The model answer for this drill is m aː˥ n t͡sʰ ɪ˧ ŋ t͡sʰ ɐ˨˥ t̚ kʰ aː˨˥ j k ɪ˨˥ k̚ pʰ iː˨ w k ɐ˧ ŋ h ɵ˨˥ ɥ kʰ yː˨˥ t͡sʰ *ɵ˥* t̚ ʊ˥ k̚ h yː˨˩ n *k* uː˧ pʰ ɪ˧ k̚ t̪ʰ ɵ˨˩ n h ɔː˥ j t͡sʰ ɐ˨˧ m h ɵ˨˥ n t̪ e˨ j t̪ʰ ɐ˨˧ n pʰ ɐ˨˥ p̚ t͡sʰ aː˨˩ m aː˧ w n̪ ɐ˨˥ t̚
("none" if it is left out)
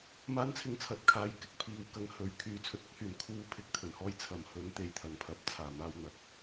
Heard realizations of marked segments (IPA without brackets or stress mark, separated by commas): ɵ˨, kʰ